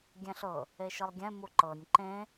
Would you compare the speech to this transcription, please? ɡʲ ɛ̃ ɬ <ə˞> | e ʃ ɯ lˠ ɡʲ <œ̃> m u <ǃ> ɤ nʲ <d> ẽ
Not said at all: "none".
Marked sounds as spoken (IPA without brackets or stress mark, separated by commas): ɤ, ɛ̃, ǃ, ǃ